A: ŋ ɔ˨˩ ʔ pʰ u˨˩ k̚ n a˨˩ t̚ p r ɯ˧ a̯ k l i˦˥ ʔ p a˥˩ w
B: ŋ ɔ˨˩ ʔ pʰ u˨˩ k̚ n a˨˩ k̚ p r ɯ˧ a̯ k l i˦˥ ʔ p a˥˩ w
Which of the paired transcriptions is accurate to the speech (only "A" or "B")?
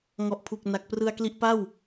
B